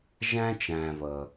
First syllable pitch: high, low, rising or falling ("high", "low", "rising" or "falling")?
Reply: high